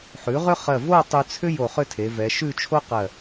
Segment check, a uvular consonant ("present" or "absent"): present